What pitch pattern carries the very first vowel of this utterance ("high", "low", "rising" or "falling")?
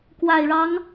low